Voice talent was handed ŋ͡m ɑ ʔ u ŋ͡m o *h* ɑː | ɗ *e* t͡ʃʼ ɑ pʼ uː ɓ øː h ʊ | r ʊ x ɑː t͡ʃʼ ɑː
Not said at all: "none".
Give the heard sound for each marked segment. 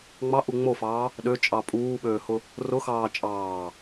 f, ø

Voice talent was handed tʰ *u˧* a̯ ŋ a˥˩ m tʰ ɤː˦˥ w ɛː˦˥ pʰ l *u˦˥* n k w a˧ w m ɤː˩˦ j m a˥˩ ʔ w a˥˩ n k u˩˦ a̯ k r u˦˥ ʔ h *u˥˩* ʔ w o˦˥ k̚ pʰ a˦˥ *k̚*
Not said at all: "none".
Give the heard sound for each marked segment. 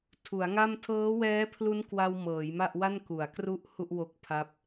u˩˦, u˦˥, u˥˩, p̚

